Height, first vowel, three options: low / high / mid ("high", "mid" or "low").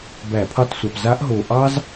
low